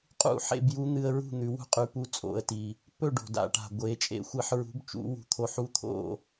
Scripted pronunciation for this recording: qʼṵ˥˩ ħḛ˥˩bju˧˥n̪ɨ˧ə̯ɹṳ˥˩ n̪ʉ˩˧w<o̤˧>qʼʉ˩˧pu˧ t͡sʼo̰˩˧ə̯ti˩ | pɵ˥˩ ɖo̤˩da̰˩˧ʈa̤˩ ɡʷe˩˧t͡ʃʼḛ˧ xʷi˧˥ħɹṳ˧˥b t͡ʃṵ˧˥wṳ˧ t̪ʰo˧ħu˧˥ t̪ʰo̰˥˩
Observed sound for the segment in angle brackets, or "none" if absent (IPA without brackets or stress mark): ṳ˧